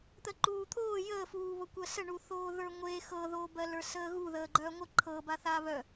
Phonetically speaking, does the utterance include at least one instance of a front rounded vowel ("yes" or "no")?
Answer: yes